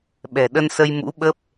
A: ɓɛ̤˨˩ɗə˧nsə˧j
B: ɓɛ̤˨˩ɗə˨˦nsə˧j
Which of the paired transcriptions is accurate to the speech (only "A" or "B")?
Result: A